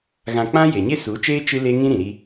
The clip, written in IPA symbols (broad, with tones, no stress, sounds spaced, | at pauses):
ɣ ã˧ k͡p ã˦ j e˨ ɲ e˦ s u˨˦ t͡ʃ eː˦ t͡ʃ ɨ˦ l e˦ ŋ ĩ˦ ɾ ĩ˨ ɾ i˧